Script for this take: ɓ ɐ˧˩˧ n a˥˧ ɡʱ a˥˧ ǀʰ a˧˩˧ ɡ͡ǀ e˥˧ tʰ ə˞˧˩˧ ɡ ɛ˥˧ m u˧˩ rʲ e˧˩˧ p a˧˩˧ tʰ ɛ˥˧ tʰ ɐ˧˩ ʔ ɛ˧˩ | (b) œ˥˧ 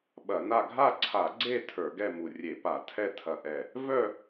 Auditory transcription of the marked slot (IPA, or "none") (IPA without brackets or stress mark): v